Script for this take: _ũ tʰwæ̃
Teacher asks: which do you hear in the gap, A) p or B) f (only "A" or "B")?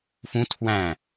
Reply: B